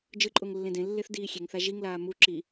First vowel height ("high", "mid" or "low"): high